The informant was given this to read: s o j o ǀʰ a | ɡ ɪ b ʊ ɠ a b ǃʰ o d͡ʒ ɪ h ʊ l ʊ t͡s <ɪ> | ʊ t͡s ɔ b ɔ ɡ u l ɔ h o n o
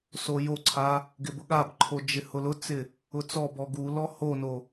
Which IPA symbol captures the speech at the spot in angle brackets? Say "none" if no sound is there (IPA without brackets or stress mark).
ɪ